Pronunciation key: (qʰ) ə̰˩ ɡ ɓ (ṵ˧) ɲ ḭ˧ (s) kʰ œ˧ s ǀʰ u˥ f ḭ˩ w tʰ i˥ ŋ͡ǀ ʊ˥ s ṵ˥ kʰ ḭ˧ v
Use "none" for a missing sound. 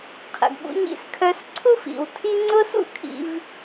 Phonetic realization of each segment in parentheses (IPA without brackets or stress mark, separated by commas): qʰ, ṵ˧, s